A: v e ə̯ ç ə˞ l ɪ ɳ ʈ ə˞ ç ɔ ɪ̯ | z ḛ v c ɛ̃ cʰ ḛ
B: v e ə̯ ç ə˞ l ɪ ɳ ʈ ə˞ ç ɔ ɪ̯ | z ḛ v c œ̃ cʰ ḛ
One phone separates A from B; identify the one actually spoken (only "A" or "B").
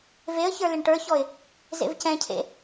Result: A